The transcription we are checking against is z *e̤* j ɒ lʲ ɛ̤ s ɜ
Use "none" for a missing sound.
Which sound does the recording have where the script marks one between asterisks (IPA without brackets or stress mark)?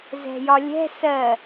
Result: ɛ̤